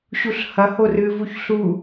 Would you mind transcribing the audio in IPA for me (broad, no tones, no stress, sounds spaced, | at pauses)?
ɕ u ɬ h ɐ h o r ɨ v u ç ɬ u